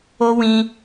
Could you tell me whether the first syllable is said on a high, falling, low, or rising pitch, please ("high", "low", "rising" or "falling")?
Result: high